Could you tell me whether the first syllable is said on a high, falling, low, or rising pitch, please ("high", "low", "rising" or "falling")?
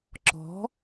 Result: rising